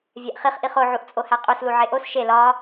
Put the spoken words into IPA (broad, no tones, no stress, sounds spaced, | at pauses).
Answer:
vʲ æ ʔ χ i χ ʔ i χ o ʕ u ʔ t͡sʼ o h æ qʼ u s l u ʕ e ʔ o s ʃ e l ɒ